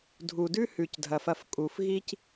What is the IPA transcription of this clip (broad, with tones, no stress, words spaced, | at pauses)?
dʱu˩dʉ˥ hʉ˩cdʱɐ˩fɐ˧f kʼu˩fɣi˥c